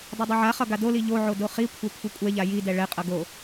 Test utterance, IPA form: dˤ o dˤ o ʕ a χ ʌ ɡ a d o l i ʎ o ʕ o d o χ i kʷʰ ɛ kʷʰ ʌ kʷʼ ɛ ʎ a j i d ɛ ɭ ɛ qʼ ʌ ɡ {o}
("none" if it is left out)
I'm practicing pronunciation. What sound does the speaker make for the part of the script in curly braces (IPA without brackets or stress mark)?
o